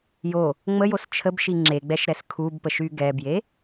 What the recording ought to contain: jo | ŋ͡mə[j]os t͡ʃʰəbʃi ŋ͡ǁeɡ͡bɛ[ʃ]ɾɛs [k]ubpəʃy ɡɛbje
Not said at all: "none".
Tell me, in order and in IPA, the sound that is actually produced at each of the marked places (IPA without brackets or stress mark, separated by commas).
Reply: j, ʃ, kʰ